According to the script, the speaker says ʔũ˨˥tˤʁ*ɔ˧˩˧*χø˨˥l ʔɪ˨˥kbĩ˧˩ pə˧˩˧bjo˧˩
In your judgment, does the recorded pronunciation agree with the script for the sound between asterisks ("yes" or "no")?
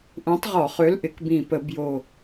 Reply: yes